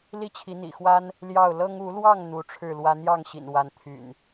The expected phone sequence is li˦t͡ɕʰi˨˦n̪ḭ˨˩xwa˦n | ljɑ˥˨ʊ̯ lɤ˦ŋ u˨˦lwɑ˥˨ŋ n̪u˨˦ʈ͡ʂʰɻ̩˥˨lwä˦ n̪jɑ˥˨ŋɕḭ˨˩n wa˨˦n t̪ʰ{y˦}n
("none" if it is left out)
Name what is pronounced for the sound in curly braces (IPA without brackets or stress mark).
y̰˨˩